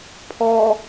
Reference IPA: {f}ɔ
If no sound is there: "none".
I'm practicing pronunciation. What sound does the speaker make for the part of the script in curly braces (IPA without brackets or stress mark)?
pʰ